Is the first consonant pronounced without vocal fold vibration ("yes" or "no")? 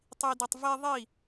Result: yes